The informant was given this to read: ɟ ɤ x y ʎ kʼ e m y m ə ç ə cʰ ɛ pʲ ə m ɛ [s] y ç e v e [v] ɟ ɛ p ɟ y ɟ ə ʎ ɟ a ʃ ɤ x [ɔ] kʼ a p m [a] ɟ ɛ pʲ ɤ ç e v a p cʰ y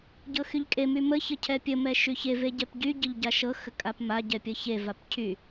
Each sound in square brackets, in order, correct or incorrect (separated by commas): incorrect, incorrect, incorrect, correct